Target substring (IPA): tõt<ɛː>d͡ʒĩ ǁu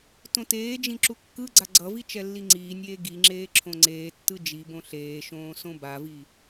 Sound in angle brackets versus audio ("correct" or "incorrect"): incorrect